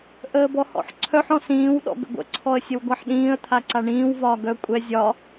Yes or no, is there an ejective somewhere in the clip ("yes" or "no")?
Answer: yes